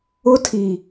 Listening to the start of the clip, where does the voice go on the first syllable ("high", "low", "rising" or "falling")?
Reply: high